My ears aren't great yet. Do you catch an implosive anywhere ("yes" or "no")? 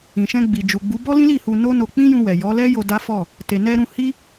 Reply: no